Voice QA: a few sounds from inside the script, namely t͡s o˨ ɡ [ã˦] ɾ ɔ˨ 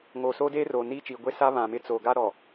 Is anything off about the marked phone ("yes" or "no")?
yes